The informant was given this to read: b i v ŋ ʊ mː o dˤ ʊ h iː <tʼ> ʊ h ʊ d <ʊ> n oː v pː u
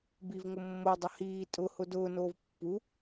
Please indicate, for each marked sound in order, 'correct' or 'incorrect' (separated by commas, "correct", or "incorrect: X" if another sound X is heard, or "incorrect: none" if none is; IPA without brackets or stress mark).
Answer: correct, incorrect: ʊː